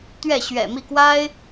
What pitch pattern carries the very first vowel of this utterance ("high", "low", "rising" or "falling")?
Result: falling